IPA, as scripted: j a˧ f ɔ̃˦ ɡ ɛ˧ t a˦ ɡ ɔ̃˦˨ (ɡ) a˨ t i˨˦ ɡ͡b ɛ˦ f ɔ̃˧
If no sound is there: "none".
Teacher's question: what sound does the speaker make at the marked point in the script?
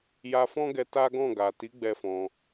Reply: ɡ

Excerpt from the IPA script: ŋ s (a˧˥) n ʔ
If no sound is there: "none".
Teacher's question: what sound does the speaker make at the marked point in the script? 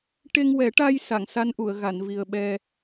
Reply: a˧˥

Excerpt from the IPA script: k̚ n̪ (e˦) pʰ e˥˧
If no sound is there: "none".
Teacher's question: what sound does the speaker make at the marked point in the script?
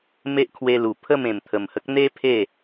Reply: e˦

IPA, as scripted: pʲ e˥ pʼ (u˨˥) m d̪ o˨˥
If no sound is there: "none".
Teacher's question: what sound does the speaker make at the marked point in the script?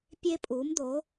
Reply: u˨˥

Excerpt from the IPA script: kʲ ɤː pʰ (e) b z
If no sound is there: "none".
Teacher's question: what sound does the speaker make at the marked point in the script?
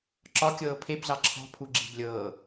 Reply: e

